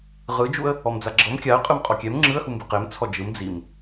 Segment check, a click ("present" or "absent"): present